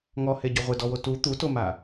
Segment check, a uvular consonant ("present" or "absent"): present